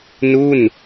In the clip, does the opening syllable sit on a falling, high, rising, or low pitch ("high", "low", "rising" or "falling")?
falling